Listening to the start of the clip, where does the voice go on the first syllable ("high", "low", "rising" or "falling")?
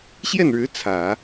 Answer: falling